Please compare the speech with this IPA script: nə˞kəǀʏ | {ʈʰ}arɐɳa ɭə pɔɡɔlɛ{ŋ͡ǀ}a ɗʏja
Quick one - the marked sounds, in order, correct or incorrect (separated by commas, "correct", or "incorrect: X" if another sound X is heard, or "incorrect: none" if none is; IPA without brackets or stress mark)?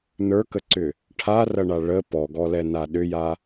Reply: correct, incorrect: n